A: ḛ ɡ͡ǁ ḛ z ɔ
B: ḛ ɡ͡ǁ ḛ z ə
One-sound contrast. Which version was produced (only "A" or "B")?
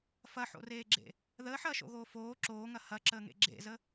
B